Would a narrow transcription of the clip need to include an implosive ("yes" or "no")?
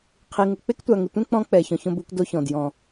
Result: no